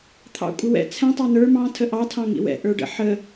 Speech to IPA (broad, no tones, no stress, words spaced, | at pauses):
t̪ʰɑ̰kʷʼəwɛ̰ t͡sʰɛ̃ tˤɑnə˞ mɑ̃ tʰəʔɑ tʰɑ̃ŋḭwɛ̰ ʔə˞ɖə̰ ħə